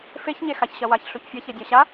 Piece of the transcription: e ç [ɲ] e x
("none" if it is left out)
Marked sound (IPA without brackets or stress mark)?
ɲ